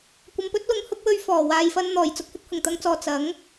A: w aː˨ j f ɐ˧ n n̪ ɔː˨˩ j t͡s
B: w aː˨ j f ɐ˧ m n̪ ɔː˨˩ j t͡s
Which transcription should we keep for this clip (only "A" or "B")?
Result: A